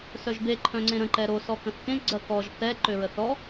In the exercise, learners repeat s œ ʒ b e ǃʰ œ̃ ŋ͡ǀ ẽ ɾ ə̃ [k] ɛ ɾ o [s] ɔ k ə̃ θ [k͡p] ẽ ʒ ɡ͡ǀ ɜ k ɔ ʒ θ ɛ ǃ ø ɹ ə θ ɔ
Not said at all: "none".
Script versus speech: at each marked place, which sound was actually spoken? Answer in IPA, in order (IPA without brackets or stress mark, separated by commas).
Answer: ǃ, s, k